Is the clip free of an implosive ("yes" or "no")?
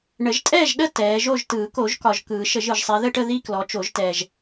no